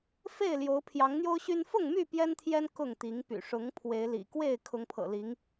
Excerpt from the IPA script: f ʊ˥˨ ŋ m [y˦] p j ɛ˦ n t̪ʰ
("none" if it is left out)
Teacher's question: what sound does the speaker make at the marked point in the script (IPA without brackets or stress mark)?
y˥˨